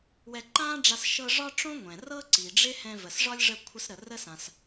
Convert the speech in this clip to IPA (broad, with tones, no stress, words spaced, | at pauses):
wɛ˧ǃãː˥ɖ͡ʐa˧s ʃɤ˧ ʐɒ˥ʈ͡ʂõ˥ ŋʷɛ̃˩ rɤ˥ ǀi˩ɖ͡ʐɪ˥hɛ̃˧və˩s ʐɒ˥lʲʐə˧ kʷʰə˧s ɾə˩rə˥sã˩s